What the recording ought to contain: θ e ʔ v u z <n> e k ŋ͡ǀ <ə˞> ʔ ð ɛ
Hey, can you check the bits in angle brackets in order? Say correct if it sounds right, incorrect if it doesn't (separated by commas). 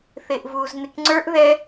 correct, correct